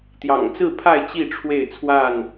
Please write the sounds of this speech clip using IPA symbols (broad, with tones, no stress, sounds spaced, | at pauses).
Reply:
t̪ j ɑ̰˨˩ ŋ t͡s ɹ̩˥˨ pʰ a˥˨ ɪ̯ t͡ɕ i˥˨ ʈ͡ʂʰ w e˥˨ ɪ̯ t͡sʰ w a˥˨ n